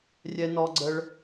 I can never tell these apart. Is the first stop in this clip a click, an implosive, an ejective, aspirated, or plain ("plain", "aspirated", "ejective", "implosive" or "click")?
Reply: click